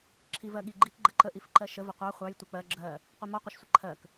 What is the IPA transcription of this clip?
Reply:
ǁʰ i v ɜ ɠ i ɡ͡ǃ i k ɡ͡ǃ ə ǃ ə ʔ i f ǃ ɜ ʃ ə v ə qʷ ɑ χʷ ɑ j tʷ ə k͡p ɜ ɡ͡ǁ ɜ | qʷ i m ɔ qʷ ɤ ʃ sʷ ə ǃʰ ɜ k

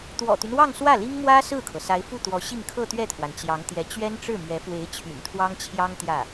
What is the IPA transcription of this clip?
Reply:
t̪ w ɔ̰˨˩ t̪ y˦ n w ɑ˥˧ ŋ s w ä˥˩ l i˥ ŋ m w ä˥ s ɹ̩˥˩ kʰ ɤ˩ s a˧˥ ɪ̯ f u˥˩ t̪ w ɔ˧˥ ɕ i˥˧ ŋ kʰ ɤ˥˧ t̪ ɥ ɛ˥˩ t̪ʰ w a˩ n t͡ɕ j ɑ˧˥ ŋ t̪ j ɛ˧˥ t͡ɕ ɥ ɛ˥ n ʈ͡ʂ ɻ̩˥˩ m ɥ ɛ˧˥ f w e˧˥ ɪ̯ t͡ɕʰ y̰˨˩ n t̪ʰ w ɑ˥ ŋ t͡ɕʰ j ɑ˥ ŋ t̪ j ä˥˩

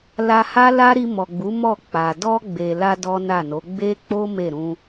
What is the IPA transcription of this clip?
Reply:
l a˧ h a˦ l a˦ ɾ i˧ m ɔ˨ ɡ͡b u˨˦ m ɔ˦˨ k͡p a˨ d ɔ˧ ɡ͡b e˨ l a˧ d ɔ˦ n a˦˨ n o˨˦ ɡ͡b e˦ k͡p o˦ m e˦˨ ɾ ũ˧

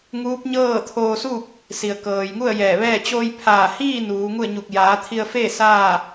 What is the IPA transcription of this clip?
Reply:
ŋ uː˧˥ p̚ ɲ ɤː˥˨ t̪ʰ oː˧ s u˥˨ k̚ | s i˩ ə̯ k ɤː˩ j ŋ u˥˨ ə̯ j ɛː˧˩ ʋ ɛː˥˨ t͡ɕ oː˧ j pʰ aː˧˩ h iː˥˨ n uː˩˧ ŋ u˥˨ ə̯ ɲ u˧˩ k̚ j aː˩˧ t̪ʰ i˧ ə̯ f eː˥˨ s aː˥˨

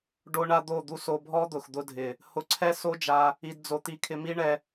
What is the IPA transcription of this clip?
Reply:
ɖ o˦ ɳ a˦ d̪ o˦˨ d̪ u˦ s o˧ bʱ ɔ˦ d̪ ʊ˨ x d̪ ʊ˧ dʱ ɪ˨ | h ʊ˧ ǀʰ ɛ˦ s o˦ d͡ʒ a˧ | i˧ d d͡z o˧ t̪ i˧ kʰ ɪ˧ m i˦ ɳ ɛ˧

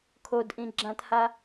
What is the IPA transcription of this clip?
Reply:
kʰ o d ʔ ĩ ɡ͡ǁ ã t h a

